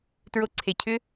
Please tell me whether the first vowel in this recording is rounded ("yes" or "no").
yes